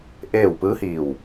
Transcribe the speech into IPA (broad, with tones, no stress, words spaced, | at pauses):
ʔeː˥˨w pɯː˧˥hiː˧˩w